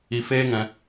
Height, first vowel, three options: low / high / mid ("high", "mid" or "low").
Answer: high